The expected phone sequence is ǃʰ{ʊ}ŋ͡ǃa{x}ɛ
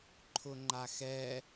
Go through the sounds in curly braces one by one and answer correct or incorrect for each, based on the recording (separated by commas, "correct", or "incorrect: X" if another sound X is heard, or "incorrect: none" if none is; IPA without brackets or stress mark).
correct, correct